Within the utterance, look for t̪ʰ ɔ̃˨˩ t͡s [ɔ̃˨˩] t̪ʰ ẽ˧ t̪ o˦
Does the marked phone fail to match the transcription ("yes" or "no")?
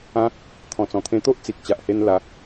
no